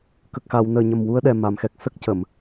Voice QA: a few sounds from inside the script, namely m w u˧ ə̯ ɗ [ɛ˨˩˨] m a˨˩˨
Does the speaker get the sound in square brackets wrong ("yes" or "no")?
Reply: yes